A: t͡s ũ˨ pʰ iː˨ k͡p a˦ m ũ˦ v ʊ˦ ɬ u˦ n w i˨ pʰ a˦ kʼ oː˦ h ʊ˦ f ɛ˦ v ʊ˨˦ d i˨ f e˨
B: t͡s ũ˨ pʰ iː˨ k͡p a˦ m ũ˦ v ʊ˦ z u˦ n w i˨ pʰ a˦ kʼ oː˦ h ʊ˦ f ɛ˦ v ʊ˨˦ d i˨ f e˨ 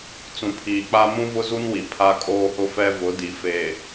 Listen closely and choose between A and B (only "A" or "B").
B